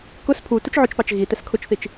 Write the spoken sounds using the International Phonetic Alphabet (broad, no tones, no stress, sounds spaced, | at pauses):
k ʊ s pʰ u t u t͡ʃ ʕ ʊ t͡ʃ p ɑ t͡ʃ ɣ i t ɛ s kʰ ʊ t͡ʃ θ i t͡ʃ